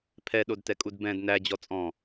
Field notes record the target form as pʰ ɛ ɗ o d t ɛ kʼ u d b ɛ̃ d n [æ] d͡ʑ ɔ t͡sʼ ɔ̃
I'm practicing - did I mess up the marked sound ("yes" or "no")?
no